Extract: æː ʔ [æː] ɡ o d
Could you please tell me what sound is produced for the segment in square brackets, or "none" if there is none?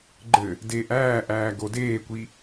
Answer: æː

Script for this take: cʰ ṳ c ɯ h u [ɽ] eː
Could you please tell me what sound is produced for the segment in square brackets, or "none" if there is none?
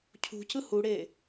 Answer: ɽ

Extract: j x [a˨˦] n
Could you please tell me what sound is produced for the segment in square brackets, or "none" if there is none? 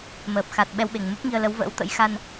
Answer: a˧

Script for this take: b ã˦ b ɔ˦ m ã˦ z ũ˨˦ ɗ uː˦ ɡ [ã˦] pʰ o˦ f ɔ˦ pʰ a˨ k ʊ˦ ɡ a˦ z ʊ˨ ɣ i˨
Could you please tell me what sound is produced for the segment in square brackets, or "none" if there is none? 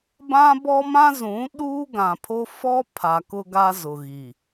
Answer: ã˨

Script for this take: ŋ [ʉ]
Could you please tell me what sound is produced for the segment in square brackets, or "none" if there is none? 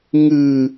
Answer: ɨ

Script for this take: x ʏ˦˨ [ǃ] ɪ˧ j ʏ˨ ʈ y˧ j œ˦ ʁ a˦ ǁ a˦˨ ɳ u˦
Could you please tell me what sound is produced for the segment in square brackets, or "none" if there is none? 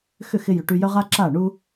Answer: x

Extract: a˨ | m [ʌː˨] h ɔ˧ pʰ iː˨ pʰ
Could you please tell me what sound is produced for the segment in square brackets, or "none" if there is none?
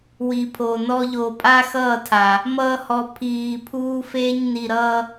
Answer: ʌː˦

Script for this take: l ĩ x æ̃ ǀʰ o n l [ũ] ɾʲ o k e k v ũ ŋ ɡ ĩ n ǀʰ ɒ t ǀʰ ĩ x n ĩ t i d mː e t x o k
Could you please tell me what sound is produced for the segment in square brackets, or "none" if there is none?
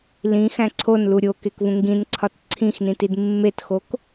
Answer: u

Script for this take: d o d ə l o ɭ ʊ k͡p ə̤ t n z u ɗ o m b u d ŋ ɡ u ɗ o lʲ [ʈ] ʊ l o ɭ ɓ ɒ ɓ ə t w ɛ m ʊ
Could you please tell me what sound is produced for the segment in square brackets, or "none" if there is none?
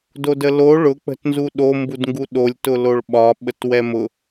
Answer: t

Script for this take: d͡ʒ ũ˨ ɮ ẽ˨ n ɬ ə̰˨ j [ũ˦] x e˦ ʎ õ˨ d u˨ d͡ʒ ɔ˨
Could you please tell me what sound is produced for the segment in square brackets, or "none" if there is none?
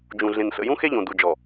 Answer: ũ˦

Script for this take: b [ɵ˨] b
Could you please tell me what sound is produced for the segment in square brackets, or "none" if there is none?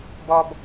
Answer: ɔ˨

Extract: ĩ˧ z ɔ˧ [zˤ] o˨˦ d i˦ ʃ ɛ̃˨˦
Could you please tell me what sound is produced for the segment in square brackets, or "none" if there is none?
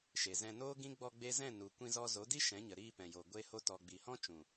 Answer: z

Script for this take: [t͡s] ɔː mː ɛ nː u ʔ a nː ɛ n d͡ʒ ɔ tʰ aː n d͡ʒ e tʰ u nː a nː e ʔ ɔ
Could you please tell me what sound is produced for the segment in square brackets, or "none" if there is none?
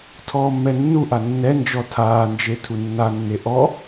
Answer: tʰ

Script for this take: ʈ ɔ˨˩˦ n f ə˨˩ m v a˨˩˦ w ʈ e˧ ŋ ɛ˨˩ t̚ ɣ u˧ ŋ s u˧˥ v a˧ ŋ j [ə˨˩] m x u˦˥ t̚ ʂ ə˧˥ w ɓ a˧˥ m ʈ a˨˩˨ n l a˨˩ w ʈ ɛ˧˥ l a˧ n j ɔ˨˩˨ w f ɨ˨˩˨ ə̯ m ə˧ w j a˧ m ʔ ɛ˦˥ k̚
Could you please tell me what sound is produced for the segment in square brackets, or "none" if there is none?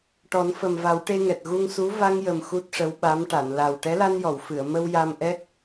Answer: ə˨˩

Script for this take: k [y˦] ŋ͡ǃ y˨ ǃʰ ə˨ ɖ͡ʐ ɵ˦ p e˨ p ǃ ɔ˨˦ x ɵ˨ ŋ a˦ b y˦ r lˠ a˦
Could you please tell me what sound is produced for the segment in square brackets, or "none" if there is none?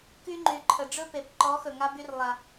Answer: y˦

